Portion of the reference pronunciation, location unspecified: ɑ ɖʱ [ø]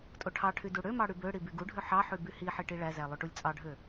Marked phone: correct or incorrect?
correct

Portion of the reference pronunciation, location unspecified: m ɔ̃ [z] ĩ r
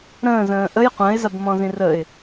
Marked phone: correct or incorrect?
correct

